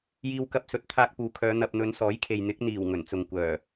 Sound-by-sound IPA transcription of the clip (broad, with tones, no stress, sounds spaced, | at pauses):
j iː˧ w k ɐ˧ p̚ s ɵ˨˥ t̚ t̪ʰ aː˧ k̚ p uː˨˧ kʰ œː˨˧ n̪ ɐ˨ p̚ n̪ ɵ˨˧ n s ɔː˨˥ j kʰ e˨ j n̪ ɪ˨˥ k̚ n̪ iː˨˩ w ŋ ɵ˨˩ n t͡s ʊ˨ ŋ kʷ œː˨˩